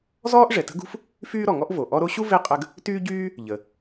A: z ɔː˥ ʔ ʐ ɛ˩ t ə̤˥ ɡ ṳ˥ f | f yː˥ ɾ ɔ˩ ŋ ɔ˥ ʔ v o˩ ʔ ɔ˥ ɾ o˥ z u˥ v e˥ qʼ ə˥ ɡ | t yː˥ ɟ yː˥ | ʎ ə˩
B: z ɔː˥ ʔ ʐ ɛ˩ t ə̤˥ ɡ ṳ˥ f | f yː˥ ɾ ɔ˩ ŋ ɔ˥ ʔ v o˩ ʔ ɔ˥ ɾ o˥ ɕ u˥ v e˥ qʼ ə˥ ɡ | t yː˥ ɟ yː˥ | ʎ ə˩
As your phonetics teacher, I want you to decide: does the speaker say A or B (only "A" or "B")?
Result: B